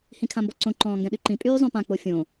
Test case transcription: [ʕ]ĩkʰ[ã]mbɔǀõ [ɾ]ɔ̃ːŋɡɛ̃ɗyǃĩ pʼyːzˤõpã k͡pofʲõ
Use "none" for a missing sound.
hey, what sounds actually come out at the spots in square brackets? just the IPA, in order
h, ã, ǃ

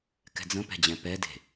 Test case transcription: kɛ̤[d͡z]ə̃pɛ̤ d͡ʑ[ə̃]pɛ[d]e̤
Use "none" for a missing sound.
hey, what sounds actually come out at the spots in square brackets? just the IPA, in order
d͡z, ɛ̃, d

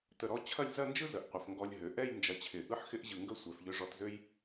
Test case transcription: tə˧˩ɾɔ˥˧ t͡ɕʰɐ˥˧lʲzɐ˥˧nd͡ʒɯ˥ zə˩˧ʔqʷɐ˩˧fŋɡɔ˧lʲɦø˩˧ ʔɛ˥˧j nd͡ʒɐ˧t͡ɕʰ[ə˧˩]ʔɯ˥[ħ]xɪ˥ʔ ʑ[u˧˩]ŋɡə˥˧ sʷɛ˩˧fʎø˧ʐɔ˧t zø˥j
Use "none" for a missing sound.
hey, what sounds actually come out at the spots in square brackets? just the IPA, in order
ɪ˧˩, ħ, ɯ˧˩

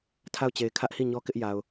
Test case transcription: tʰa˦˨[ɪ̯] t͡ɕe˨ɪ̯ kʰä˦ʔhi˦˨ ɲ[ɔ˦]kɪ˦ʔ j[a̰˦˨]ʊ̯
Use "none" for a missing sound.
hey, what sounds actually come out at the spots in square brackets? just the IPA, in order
ʊ̯, ɔ˦, a˨

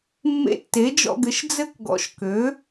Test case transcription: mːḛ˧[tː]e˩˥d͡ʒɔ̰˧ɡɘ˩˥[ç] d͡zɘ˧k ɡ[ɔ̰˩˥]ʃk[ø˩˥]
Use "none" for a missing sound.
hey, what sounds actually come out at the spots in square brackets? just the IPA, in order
tː, ʃ, ɔ̰˩˥, ø˩˥

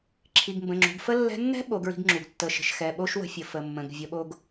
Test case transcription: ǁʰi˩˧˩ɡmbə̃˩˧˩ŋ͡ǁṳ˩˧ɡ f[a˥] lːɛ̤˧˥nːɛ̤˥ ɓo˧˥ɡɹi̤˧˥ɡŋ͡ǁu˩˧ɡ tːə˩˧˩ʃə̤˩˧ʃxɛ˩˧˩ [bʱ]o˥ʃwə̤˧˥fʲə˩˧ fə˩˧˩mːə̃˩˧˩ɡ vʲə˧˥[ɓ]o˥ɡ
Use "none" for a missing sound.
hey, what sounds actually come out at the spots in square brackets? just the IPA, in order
ə˥, ɓ, ɓ

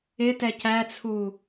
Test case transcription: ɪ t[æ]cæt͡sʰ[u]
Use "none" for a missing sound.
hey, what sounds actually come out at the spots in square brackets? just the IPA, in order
ɛ, u

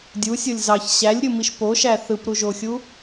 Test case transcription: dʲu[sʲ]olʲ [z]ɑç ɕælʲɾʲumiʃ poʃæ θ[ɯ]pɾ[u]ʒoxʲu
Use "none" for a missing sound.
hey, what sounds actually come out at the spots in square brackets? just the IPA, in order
sʲ, z, ɯ, u

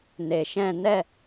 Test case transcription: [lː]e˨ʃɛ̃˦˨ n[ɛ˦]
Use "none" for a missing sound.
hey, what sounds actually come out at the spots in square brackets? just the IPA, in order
n, ɛ˦˨

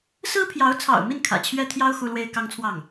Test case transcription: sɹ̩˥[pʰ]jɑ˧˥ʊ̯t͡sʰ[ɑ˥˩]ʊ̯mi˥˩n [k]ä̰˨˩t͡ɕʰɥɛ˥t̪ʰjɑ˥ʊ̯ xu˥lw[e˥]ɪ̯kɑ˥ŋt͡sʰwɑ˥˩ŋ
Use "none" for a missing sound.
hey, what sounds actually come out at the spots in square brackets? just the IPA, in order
pʰ, ɑ̰˨˩, kʰ, e˥

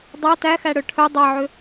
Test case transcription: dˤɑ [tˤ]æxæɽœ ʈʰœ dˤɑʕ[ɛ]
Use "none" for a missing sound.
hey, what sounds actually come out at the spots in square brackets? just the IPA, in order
t, ø

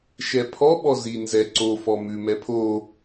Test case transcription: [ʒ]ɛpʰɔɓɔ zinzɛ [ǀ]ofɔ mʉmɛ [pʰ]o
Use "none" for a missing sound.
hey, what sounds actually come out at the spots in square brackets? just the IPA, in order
ʃ, ǀ, pʰ

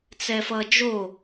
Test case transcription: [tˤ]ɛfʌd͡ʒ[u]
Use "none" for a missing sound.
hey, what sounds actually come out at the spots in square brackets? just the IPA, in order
t͡s, o

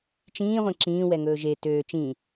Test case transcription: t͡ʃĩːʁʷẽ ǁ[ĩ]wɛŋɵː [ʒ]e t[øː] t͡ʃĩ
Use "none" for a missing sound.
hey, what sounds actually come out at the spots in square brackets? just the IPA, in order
ĩː, ʒ, øː

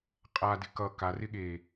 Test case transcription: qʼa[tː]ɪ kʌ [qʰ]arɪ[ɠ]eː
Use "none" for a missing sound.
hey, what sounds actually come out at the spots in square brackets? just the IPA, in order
d, k, ɠ

